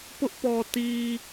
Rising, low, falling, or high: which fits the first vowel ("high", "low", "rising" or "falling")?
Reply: high